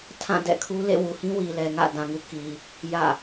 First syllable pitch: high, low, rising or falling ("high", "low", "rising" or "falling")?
falling